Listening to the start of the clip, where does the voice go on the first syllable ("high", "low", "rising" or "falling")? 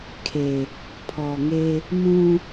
low